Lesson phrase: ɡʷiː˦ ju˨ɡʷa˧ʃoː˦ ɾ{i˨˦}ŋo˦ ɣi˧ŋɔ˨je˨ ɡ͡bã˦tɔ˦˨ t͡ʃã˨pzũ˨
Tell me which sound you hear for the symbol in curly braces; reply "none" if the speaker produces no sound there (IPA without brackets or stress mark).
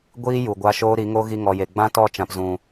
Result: i˨˦